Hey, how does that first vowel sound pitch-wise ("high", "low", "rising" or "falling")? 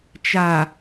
low